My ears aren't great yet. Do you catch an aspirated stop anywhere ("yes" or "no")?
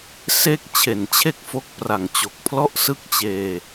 yes